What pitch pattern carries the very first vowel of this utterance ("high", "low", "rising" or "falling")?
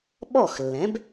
falling